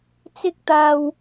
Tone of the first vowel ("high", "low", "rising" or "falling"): high